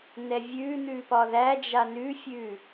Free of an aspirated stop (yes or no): yes